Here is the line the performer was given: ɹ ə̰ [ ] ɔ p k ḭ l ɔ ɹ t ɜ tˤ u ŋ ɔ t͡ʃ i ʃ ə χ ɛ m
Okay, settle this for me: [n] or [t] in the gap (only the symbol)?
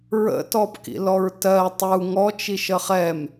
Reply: t